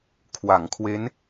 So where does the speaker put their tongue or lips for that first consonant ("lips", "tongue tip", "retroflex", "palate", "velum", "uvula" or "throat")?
velum